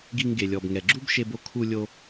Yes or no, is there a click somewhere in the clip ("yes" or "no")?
yes